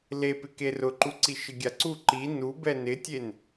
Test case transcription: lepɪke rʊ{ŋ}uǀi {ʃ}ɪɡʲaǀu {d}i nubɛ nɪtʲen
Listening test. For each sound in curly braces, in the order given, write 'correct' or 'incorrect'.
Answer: incorrect: ǃ, correct, incorrect: ǃ

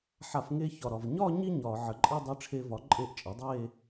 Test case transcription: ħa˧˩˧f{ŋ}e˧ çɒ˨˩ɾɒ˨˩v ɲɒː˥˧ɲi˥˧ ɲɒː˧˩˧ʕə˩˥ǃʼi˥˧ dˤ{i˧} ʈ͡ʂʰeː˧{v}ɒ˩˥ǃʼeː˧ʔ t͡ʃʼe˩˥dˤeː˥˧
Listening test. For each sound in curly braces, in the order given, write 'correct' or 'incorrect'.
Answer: correct, correct, correct

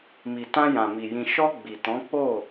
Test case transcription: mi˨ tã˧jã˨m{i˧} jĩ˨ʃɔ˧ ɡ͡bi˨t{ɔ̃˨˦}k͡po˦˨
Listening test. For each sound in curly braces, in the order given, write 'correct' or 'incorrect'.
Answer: incorrect: i˨, correct

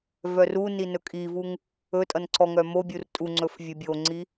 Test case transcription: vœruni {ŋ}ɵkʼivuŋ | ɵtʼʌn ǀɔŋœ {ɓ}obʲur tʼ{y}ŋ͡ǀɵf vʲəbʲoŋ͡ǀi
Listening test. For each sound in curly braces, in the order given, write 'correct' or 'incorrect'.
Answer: incorrect: n, incorrect: m, incorrect: u

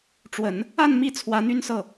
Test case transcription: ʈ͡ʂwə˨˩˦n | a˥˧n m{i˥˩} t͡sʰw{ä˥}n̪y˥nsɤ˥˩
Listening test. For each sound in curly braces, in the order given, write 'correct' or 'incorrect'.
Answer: correct, incorrect: ä˧˥

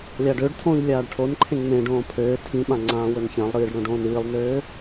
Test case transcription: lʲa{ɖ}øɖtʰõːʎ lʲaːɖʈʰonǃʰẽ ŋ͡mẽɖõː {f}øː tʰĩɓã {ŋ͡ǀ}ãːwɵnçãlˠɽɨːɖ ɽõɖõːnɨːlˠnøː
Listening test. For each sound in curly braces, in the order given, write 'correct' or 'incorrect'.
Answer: correct, incorrect: pʰ, correct

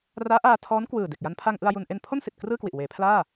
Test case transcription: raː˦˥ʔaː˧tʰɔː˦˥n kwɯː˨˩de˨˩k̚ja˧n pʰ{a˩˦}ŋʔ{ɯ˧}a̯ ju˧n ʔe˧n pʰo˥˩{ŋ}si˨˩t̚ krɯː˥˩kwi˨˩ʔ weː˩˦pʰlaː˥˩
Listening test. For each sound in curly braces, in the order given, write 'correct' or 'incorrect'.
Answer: incorrect: a˧, correct, incorrect: n

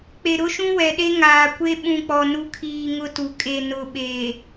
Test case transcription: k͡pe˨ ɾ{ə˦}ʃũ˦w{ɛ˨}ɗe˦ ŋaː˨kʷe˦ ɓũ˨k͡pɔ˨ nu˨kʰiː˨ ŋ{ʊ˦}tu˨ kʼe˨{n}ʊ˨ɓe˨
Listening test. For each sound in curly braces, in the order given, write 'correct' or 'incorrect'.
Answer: incorrect: ʊ˦, correct, correct, correct

